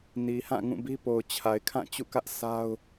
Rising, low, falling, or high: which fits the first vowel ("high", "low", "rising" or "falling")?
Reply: low